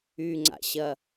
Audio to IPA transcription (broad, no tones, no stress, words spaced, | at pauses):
yŋ͡ǀa̰ɕɐ